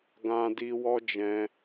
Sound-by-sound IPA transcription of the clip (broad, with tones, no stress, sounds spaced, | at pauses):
ɡ ã˧ d i˧ w ɔ˦ d͡ʒ ɛ̃˧